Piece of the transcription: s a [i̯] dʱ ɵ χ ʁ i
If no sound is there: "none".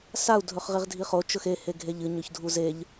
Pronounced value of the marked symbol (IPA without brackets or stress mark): u̯